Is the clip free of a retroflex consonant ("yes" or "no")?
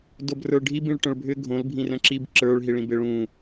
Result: no